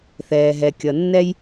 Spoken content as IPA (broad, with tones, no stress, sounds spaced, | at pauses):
θ ɛː˩ ɦ ɛ˩ kʲ ʌ˩ nː ɛ˥ j